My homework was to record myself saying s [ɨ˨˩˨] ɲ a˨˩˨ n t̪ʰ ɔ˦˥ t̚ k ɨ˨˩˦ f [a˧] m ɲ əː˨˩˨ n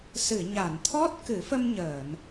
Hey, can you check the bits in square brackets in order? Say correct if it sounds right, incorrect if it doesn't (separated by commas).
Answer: correct, incorrect